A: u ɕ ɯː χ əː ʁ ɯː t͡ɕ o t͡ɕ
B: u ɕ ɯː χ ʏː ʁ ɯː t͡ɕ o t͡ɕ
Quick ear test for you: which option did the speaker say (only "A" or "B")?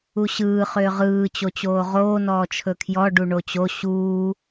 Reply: B